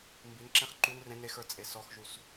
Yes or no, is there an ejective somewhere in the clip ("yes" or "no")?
yes